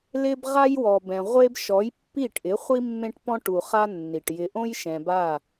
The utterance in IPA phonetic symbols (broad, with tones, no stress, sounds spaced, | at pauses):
l ɪ˦ b ʁ a˦ j w ɔ˨ b ɛ̃˨ ʁʷ e˦ b ʃ ɔ˨˦ j pː i˦˨ ʈ ʔ ɪ˨˦ χʷ i˦ mː ẽ˦ ʈ p ɔ̃˦ ʈ u˨ χ a˦ nː i˨ ʈ j ɪ˨ ʔ õ˦ j ʃ ɛ̃˨ b a˦˨